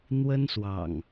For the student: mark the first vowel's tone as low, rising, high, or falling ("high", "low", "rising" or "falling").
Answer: high